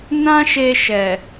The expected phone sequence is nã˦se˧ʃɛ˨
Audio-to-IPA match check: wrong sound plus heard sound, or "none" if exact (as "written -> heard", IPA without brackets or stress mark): s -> ʃ